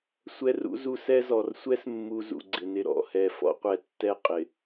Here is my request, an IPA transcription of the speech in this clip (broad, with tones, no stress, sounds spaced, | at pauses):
sʷ ɛ˦ r ṵ˦ z u˦ s ɛ˦ z ɔ˨ r sʷ ɛ˦ s mː u˨ z ṵ˨ ɡ͡ǀ ɪ˨ n ɪ˦ ɾ ɔ̰˦˨ h ɛ˨ f ɔ̰˦ qʷ ɛ˨ tː ɛ˦˨ qʼ ɪ˨